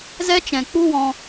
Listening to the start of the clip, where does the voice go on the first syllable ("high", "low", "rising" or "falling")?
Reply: high